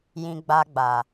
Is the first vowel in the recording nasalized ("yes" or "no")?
yes